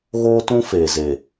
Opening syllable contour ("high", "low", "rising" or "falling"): high